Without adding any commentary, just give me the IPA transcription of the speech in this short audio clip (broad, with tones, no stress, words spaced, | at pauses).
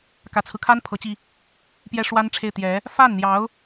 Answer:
kä˨˩t͡sʰɹ̩˦kʰa˥n pʰɤ˧˥t͡ɕi˧ | pjɛ˥ʂwa˥nʈ͡ʂʰe˥˩ɪ̯ t̪jɛ˧˥ | fa˥˩nn̪jɑ˧˥ʊ̯